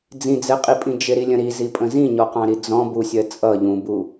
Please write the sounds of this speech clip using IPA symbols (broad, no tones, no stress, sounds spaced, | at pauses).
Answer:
d͡z ĩ d͡z ɛ qʼ i pʼ ĩ d͡ʒ ɪ ɾ i lʲ ə̃ ɾ i z i pʼ ə̃ z ĩ ɲ ɔ q ɑ̃ ɾ i d͡z ɔ̃ b u sʲ ɜ t͡sʼ ʌ ʎ ũ b u